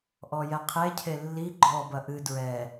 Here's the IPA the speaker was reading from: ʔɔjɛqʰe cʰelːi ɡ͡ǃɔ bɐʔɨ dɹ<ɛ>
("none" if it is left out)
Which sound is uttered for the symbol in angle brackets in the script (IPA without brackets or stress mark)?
ɛ